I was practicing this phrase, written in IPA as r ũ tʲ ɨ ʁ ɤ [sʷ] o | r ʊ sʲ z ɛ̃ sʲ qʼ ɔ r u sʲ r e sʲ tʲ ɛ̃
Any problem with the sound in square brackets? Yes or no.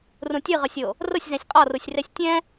yes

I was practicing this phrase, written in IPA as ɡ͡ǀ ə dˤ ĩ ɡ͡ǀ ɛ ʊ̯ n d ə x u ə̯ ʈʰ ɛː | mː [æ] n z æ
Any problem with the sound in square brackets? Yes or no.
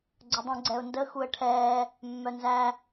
yes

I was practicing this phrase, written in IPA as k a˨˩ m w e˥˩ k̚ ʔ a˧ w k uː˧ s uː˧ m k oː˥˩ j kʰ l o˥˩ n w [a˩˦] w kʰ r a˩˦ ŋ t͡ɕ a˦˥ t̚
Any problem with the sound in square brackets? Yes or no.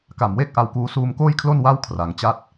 yes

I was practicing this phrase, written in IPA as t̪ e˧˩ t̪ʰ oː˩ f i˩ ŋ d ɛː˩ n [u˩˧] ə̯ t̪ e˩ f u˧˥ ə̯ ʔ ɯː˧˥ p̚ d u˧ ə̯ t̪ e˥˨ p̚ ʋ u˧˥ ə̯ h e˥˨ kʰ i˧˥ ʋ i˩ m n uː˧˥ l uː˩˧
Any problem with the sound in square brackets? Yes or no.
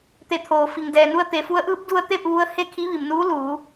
yes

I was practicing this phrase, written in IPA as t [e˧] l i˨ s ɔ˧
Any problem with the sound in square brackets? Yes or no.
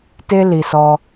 no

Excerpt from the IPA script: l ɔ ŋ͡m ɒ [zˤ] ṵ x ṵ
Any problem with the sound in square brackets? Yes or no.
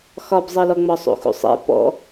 yes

